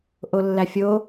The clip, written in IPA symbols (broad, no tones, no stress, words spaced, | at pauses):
ʔolːæfʲo